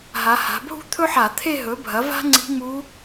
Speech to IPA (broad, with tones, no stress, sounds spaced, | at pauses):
ɦ a˩˧ h a̤˩˧ bʱ ṳ˥ t̪ʰ ɵ˥ ħ a˧˩˧ t̪ʰ e˥˧ ɦ ɵ˩˥ bʱ ɐ˩˥ v a̤˥ ŋ͡ǀ i̤˧˥ ŋ͡m u˧˥